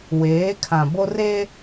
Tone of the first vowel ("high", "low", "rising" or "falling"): rising